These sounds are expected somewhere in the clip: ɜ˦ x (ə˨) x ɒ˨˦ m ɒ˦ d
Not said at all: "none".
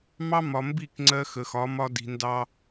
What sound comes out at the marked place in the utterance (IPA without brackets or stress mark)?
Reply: ə˨